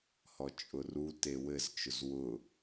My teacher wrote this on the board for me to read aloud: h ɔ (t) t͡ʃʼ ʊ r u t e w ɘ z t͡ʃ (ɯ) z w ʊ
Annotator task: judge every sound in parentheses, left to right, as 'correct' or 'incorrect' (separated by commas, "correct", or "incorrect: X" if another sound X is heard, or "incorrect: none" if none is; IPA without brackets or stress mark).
incorrect: none, incorrect: ʊ